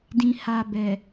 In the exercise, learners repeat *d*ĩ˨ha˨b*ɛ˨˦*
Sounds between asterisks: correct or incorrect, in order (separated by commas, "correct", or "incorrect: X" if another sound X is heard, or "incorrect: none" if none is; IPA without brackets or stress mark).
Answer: correct, incorrect: ɛ˨